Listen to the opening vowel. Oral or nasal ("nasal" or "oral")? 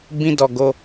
nasal